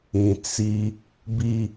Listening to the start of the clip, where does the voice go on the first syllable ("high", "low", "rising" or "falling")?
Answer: low